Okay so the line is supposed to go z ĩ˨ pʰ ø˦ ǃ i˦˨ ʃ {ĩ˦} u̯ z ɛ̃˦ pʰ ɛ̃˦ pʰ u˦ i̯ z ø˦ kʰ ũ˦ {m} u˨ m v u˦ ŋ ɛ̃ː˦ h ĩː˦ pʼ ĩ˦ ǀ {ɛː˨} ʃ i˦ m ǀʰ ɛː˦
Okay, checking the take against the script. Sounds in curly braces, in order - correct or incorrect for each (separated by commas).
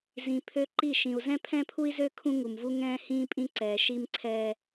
incorrect, incorrect, correct